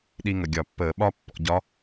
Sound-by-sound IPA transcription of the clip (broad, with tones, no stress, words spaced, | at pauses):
ɗi˧ŋə˩ɡʲɒ˧˩˧pːəː˧˩˧ ɓɒ˥pːɔ̰˧ɟɒ˧˥